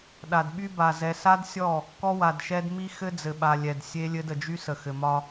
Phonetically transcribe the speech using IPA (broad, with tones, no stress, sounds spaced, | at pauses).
ɗ a˨ d ɓ y˦ b a˨ z ɛ˨ s a˦ d sʲ ɔ˦˨ | k ɔ˦ w a˨ d ʃ ɛ˦ d m i˦ x ɘ˦ d͡z ɘ˨ ɓ a˨ lʲ ɛ˨ d sʲ e˦ lʲ ɘ˦ d ə˨ d͡ʒ y˦ s ə˨ x ɘ˨ m ɒ˦